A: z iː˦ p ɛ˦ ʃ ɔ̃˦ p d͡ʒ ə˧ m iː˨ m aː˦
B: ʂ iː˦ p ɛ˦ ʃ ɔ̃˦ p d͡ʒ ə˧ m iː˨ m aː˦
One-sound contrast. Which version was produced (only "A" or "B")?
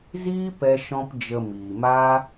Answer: A